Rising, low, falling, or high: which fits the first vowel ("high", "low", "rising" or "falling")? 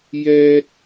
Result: high